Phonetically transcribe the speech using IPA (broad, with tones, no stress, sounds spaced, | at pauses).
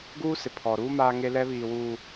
ɡ uː˦ s ɪ˨ pʰ ɔ˨ ɾ uː˦ m aː˦ ŋ e˦ l ɛ˦ β iː˨ w uː˨